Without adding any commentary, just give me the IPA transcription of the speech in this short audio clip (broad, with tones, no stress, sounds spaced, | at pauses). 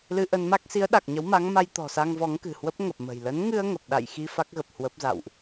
l ɨ˧ ʔ ə˧ n m a˦˥ k̚ s i˨˦ ə̯ ɗ a˨˩ k̚ ɲ ə˨˦ w m a˨˦ ŋ m a˧ j t̪ ɔ̤˨˩ s a˧ ŋ v ɔ˨˦ ŋ k ɨ̤˨˩ h w ə˦˥ p̚ ŋ ə˨˩ p̚ m ə̤˨˩ j l ə˨˦ n ŋ ɨ˧ ə̯ ŋ ə˨˩ p̚ ɗ a̰˧˨ j x i˧ f a˦˥ k̚ ɣ ə˨˩ p̚ h w ə˦˥ p̚ z a̰˧˨ w ʔ